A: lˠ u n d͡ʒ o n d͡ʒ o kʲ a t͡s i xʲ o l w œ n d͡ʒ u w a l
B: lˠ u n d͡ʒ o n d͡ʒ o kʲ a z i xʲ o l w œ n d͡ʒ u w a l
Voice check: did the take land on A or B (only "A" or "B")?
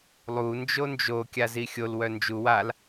B